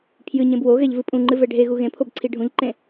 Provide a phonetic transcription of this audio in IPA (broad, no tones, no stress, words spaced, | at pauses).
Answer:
pʰjɨɲẽb woɣɛʎvɨ pʼũŋ͡ǃɨvɛ ɖʱeɣu ɣẽpʰobǀʰi ɖʱũʎǃẽ